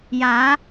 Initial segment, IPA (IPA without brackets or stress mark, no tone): j